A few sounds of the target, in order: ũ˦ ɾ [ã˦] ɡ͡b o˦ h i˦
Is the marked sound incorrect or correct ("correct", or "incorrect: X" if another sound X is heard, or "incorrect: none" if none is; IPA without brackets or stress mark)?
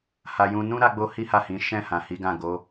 incorrect: a˦